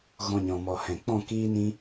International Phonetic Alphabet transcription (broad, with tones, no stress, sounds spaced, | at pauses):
ɣ ɔ̃˧ ɲ ɔ̃˨ m ɔ˨ h ɛ̃˨ k͡p ɔ̃˦˨ k iː˦ n ĩ˦